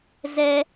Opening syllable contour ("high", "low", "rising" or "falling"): high